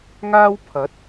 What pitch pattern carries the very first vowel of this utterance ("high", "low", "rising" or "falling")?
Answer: high